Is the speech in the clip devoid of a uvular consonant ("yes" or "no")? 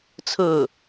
yes